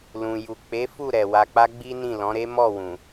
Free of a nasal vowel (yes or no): no